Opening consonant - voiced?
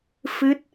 no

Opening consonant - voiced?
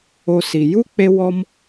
no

